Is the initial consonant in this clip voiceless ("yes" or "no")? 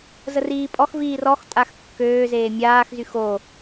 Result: no